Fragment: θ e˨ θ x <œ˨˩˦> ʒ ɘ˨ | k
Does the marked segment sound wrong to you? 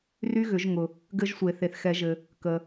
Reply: yes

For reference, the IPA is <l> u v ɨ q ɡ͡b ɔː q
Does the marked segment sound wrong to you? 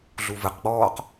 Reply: yes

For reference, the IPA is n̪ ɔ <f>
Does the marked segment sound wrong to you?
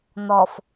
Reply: no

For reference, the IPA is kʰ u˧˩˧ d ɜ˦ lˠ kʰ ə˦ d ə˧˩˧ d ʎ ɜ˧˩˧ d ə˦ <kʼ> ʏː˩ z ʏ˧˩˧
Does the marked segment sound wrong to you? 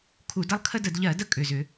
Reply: no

